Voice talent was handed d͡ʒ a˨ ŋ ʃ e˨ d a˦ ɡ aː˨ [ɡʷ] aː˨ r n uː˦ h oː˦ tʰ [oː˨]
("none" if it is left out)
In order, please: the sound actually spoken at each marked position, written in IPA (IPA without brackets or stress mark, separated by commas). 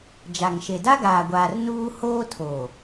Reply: ɡʷ, oː˨